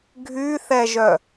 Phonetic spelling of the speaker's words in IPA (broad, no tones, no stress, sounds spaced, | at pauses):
ɡʱ y θ ɛ ʒ œ